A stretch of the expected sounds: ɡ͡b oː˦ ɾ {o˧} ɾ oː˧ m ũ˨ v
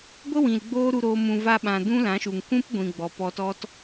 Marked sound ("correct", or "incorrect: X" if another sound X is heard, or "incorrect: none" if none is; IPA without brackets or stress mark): incorrect: u˧